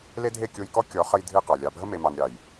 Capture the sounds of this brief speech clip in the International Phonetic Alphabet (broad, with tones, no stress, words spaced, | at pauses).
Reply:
le˦dʱe˦˨ kʲo˧jkɔ˦ kʲɔ˨˦χə˧j dʱɨ˦qɑ˨ lʲɑ˨bʱə˦ me˧mɑ˧n ɾʲɑ˨j